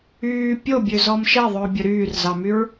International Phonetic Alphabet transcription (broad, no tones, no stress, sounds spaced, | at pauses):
yː pʲ o bʲ ø z ɔ m ʃ ɛ ðˤ ɵː bʲ ɵ ɾ yː r z ɑ m y ɹ